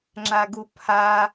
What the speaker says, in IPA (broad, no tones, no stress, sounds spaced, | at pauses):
ŋ͡ǁ a ɡ u pʰ a